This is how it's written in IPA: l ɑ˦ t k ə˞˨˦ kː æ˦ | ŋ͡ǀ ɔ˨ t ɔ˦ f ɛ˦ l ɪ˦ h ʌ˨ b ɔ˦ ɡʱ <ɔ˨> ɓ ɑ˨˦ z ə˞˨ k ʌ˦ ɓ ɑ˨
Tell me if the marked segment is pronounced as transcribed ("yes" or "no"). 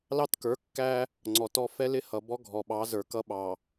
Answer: yes